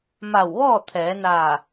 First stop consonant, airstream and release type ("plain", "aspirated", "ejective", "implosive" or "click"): aspirated